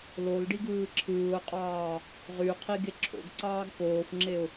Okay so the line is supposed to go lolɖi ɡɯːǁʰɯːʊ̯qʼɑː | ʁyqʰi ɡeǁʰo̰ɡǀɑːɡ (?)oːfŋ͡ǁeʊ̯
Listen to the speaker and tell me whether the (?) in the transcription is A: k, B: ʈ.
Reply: A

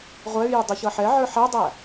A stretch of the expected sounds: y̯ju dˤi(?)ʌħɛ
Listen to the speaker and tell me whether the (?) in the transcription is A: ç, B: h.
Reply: A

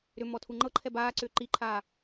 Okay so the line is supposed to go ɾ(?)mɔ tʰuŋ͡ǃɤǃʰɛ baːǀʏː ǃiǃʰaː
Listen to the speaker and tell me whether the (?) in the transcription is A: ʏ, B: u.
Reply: A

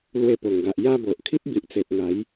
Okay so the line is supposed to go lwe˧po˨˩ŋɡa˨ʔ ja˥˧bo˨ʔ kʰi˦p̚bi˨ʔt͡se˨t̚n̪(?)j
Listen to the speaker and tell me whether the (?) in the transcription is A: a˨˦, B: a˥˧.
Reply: A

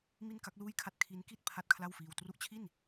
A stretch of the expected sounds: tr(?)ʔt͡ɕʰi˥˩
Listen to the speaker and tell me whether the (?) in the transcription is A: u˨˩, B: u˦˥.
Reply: B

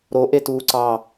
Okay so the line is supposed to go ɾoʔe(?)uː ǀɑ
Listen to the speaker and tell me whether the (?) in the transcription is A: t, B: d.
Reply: A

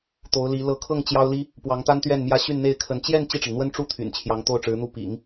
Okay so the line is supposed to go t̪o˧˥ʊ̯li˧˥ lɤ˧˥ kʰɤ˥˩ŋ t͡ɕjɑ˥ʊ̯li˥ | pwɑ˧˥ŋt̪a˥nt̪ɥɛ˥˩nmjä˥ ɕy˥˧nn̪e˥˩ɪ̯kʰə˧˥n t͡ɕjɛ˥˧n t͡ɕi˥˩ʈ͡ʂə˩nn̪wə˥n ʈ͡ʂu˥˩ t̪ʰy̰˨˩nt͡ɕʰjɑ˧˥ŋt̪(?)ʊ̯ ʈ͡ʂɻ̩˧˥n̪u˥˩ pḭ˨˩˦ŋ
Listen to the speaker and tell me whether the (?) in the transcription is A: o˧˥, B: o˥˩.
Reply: B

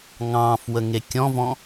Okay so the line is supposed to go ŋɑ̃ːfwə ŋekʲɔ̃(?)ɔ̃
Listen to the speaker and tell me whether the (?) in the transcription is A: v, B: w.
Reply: A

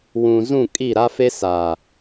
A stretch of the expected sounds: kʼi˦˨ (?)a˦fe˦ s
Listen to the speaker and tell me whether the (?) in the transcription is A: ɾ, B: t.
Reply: A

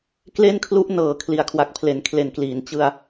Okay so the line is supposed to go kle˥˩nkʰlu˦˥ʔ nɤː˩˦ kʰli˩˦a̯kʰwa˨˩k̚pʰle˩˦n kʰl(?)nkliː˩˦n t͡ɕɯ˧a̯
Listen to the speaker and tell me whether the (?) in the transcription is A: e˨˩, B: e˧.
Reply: A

